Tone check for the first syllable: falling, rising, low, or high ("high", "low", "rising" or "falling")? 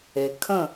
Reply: low